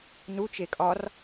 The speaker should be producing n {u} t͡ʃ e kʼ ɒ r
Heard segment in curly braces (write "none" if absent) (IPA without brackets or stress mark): u